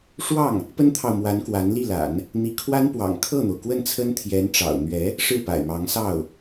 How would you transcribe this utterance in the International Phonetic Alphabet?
ʂ w ɑ˥˩ ŋ | p ə˥ n t̪ʰ ɑ˨ ʊ̯ m w a˧˥ n k w a˧˥ n l i˥˩ l a̰˨˩˦ n | n̪ i˧˥ kʰ w a˥ n p w ɑ̰˨˩ ŋ kʰ ɤ˥˩ n̪ o˩ ʊ̯ k w ə˥˩ n t͡sʰ ə˥ n t̪ʰ j ɛ˧˥ n ʈ͡ʂ ɑ̰˨˩ ʊ̯ n̪ ɥ ɛ˧˥ | ʂ ɻ̩˥˩ p a̰˨˩ ɪ̯ m ɑ˧˥ ŋ s ɑ˥˩ ʊ̯

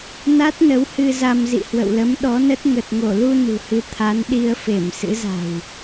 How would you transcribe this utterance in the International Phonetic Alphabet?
n a˦˥ t̚ n ə˨˦ w h ɨ˧ z a˧ m z ḭ˧˨ h w ə̰˧˨ w l ə˨˦ m ɗ ɔ˨˦ n ə˦˥ t̚ ŋ ə˨˩ t̚ ŋ o˧˩ l u˧ n ṳ˨˩ h ɨ˨˦ t̪ʰ a˨˦ n ɗ i˧ ə̯ f e˧˩ m s ɨ̰˧˥ z a̤˨˩ w

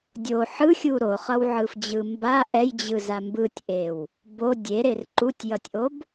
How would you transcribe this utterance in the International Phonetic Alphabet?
dʲ o ħ ɯ xʲ u ɾ o χ ʌ w ʕ ɯ f d͡ʑ ɯ m b a ʔ ɛ j d͡ʑ ɯ z a m b ɯ tʲ ʔ e w | b o dʲ e ɾ e r ǃ u tʲ j ʌ tʲ ʔ o b

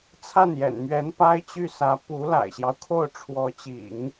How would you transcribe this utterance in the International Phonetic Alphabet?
t͡sʰ a˥˩ n j ɛ̰˨˩ n m ɥ ɛ˧˥ n p a˥ ɪ̯ t͡ɕ y˥˩ s ä˧˥ p u˧˥ l a̰˨˩ ɪ̯ ɕ j ɑ˦ ʊ̯ kʰ o˥˩ ʊ̯ ʈ͡ʂʰ w ɔ˧˥ t͡ɕ ḭ˨˩˦ ŋ

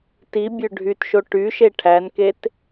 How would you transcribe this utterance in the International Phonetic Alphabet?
t i bʲ ø ɖʱ y t ʃ o ʈ y ʃ e ʈʰ æ n k e t

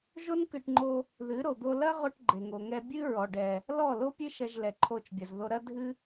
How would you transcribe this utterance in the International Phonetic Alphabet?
ʒ o˦ n k ɨ˧ ʈ ŋ͡ǃ o˧ | ð ɨ˨˦ ɾ o˨ d̪ o˧ l ɐ˦ ʁ o˧ ʈ ɡ͡ǃ e˨ ŋ o˨ ŋ ɛ˧ bʲ ɨ˦ ɹ ɔ˨ ɖ ɛ˨ | l ɔ˦˨ l o˦ pʲ ɨ˦ ʃ ɐ˧ ʒ l ɛ˨ ǃʰ o˧ t͡ʃ bʲ ɐ˨ z ð o˧ ɾ ɐ˧ dʱ ɨ˧

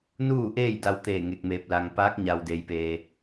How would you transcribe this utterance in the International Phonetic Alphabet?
n uː˥˨ ʔ eː˥˨ j d a˧ w t̪ eː˧˩ ŋ e˧ k̚ m eː˧ p̚ l a˧ ŋ p aː˧˥ k̚ ɲ a˧ w d e˧ j p eː˧

